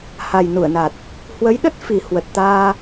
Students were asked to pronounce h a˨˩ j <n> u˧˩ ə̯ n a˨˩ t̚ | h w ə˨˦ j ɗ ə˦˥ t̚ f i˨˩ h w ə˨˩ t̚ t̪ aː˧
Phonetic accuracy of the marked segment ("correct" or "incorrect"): correct